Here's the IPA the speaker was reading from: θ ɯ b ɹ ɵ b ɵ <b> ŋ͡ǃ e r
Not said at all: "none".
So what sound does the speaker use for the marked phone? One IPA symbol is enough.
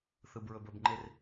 b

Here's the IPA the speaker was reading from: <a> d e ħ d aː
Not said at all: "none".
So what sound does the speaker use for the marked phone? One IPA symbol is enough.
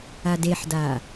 a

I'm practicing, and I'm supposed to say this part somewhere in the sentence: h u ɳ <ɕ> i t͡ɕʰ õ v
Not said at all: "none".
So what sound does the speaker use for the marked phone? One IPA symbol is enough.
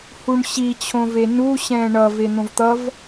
ɕ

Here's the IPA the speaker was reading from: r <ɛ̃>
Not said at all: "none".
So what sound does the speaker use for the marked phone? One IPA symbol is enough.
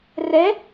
ɛ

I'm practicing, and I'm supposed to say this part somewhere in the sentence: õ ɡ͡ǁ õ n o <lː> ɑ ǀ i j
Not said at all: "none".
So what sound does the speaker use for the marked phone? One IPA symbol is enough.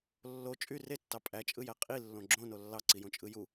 lː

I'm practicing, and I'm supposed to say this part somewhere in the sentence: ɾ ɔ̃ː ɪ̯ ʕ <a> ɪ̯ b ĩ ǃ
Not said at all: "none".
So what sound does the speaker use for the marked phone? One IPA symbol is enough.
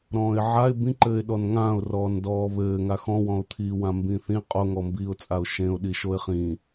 a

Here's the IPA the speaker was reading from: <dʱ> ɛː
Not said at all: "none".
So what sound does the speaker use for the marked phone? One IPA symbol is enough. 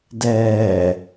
d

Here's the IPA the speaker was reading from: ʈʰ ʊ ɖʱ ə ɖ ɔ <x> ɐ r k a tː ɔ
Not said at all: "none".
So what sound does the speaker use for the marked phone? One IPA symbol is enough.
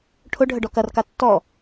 k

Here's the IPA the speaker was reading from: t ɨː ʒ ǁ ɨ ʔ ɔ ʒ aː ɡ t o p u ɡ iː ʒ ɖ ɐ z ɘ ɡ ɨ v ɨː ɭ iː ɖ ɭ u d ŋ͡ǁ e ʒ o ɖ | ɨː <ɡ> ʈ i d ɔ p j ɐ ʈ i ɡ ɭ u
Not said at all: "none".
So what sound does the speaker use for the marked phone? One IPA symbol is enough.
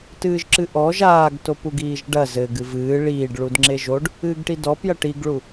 ɡ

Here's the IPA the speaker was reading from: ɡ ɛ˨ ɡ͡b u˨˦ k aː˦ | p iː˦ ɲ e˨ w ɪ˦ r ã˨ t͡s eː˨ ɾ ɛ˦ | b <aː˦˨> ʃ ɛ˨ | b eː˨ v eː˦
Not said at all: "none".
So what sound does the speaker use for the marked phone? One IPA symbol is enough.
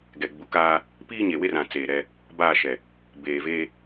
aː˦˨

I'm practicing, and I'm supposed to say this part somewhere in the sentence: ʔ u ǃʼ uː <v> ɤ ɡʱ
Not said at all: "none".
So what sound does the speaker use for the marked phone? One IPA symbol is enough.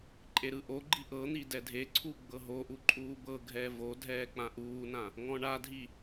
b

